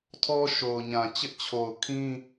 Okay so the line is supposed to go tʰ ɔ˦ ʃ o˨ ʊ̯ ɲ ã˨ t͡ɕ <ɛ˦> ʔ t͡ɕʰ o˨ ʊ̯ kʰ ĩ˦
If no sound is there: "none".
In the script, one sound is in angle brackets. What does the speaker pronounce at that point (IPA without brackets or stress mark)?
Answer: ɪ˦